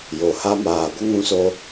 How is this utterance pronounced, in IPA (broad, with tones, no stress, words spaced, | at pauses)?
jo˨ha˧ maː˨ɡʷə˦ŋũ˧so˧